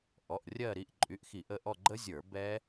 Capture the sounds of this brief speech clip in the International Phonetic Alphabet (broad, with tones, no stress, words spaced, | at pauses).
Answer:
ʔɔ˩˧˩ʔrʲɜ˦˨ ɾi˩˧˩ʔǃʼy˩˧˩ʔxi˧˩˧ʔə˩˧˩ ʔɔ˦˨ɡ͡ǃə˦˥zʲə˞˧˩˧ bɛ˦˥